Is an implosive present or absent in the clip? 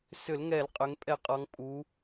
absent